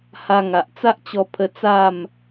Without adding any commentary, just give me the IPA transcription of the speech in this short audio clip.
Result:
h a˧ ŋ a˨ ʔ t͡s a˦ ʔ t͡ɕ ɔ˧ pʰ ə˧ t͡s a˥˧ m

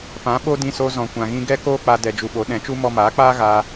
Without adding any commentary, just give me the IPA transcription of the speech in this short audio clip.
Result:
p ã˨˦ ɓ o˦ d ĩ˧ s o˧ z ɔ̃˨ kʷ ã˨ ɣ ĩ˧ ɡ ɛ˦ k oː˦ k͡p a˧ d ɛ˧ d͡ʒ u˧ ɓ o˨˦ ɗ ɛ̃˨˦ t͡ʃ u˦ m ɔ˧ m aː˨˦ k͡p aː˦ ɣ aː˧

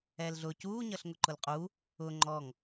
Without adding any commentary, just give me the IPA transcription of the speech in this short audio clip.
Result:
ɛː l ɮ ʊ c uː ɲ ʌ ɬ ŋ ʊ ǃ ʊ l qʼ u | ʊ ŋ͡ǃ ɔ ŋ

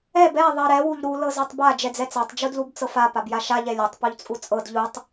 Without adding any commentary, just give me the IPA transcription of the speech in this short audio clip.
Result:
ɛ b ɛ ðˤ ɜ ɾ ɛ w u ʎ ɾ u l ɤ z ɜ tˤ b a d͡ʒ ɛ d͡z ɛ t͡s a tˤ d͡ʒ u d l u b t͡s ɤ f a p a b j a ʃ a ʎ ɛ lʲ ɛ tˤ p u ʎ t͡sʼ u t͡sʼ ɤ d ʎ u tˤ

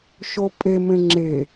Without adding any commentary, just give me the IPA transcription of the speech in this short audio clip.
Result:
ʃ o pʼ e m ẽ ŋ͡ǁ e

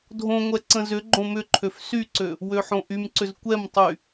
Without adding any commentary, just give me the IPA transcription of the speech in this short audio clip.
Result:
dʱ õ ŋʷ ɛ ǀ ə̃ z ʏ ɡ͡ǃ õ m ʏ ǃʰ ø f s y ǀ ø | w ø ħ õ ʔ y m ǀ ʏ z kʷ ɛ m tˤ y

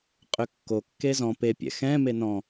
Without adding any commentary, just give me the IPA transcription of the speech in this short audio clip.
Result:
qʼ ʏ kː o kː e z ɔ̃ p e pʲ ɛ̰ x ɛ̃ m e n ɔ̃

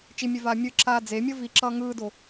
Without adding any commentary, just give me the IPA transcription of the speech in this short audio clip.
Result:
t͡ʃ i mʲ ɛ v aː mʲ ɯ ǁ aː d͡z e mʲ ʌ v i ǁ ʌː ŋ ɯː d o

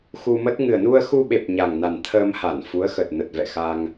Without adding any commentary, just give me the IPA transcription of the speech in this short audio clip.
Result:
x u˧ m ə˦˥ t̚ ŋ ɨ˨˩ ə̯ n u˧ ə̯ x u˧ ɓ e˨˩ p̚ ɲ a˨˩ ŋ n a˨˩ n t̪ʰ əː˧ m h a˧˩ n f u˨˦ ə̯ x ə˨˩ t̚ n ə˨˩ t̚ v ɛ̰˧˨ x a˧ ŋ

